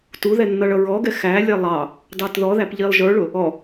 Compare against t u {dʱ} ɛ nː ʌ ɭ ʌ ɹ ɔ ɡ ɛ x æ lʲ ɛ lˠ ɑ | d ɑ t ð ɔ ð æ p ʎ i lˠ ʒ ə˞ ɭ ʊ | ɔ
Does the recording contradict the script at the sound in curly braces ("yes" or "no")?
yes